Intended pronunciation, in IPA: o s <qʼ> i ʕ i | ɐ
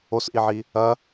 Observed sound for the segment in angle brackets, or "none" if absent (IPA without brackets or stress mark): ʔ